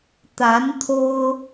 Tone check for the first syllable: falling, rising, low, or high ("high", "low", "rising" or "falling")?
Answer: rising